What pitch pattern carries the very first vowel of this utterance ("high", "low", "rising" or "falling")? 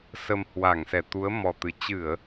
low